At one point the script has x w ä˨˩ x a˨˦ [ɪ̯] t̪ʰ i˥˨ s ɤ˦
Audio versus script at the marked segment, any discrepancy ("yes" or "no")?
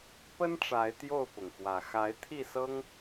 no